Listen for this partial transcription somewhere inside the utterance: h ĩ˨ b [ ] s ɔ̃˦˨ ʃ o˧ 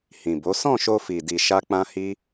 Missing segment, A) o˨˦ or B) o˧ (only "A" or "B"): A